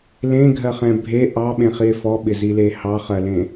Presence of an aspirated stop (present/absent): absent